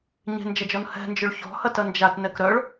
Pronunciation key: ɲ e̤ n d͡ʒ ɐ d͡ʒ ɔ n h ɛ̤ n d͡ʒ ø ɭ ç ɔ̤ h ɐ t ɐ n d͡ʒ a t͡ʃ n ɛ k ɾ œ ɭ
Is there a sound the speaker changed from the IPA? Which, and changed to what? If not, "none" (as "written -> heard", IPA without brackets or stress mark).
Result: t͡ʃ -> t